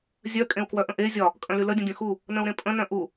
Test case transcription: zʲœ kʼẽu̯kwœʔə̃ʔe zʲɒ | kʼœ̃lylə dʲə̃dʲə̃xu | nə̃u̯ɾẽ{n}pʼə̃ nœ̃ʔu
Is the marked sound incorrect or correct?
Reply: incorrect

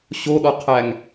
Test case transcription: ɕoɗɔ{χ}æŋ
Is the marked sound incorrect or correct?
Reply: incorrect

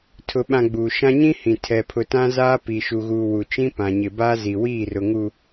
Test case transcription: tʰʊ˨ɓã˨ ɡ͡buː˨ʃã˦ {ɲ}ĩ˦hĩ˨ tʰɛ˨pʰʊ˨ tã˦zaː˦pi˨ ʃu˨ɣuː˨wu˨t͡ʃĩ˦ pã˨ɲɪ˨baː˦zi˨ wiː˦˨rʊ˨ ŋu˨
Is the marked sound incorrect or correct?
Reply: correct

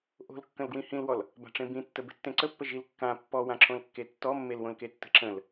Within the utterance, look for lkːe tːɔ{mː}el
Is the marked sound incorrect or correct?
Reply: correct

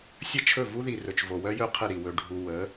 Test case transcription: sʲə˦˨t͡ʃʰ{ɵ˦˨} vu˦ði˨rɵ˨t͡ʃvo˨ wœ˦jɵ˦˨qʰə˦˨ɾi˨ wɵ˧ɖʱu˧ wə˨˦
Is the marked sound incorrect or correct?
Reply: correct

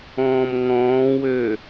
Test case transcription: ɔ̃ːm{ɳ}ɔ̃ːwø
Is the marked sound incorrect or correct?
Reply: incorrect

